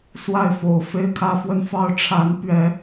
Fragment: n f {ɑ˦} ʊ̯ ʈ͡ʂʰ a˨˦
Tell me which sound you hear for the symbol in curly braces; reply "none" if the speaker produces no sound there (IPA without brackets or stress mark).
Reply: ɑ˦